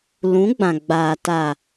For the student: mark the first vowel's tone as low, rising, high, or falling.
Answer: rising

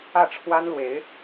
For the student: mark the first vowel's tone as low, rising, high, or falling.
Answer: falling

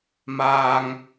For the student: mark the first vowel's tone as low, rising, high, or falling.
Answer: low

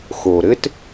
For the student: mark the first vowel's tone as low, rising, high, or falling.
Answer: low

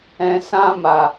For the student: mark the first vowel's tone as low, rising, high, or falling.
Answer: low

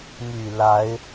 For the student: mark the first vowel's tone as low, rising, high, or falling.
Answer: low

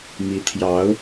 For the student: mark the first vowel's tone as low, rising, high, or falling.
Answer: rising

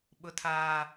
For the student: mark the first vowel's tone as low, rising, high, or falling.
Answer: high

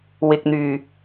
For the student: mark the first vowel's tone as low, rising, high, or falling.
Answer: low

